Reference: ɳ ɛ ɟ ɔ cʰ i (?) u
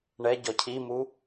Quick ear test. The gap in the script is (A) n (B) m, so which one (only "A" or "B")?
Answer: B